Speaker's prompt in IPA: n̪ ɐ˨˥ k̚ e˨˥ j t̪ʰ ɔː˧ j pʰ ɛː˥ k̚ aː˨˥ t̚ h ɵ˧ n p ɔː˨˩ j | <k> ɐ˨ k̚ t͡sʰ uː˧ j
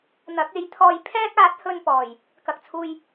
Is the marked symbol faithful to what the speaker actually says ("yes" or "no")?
yes